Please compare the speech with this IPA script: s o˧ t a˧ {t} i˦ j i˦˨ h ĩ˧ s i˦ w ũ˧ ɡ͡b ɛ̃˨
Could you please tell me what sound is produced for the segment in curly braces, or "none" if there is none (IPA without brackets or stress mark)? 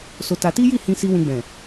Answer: t